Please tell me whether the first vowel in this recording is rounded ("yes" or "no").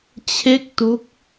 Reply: no